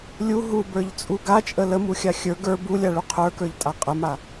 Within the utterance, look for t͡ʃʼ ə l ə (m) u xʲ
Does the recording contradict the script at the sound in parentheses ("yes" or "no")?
no